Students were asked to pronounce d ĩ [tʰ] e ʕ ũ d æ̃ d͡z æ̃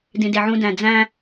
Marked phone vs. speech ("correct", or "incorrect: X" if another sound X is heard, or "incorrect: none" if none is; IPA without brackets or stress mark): incorrect: d